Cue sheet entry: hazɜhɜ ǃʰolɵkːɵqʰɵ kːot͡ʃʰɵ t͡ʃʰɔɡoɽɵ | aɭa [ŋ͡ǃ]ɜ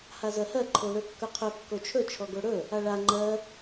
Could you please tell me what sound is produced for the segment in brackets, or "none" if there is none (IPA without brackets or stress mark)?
ŋ͡ǃ